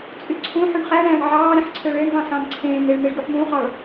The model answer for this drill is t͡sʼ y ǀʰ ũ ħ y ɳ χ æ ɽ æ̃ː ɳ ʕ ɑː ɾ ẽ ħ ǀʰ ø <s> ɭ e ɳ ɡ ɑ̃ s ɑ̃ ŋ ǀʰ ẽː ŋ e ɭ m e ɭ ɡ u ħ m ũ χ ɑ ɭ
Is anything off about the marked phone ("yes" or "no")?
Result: yes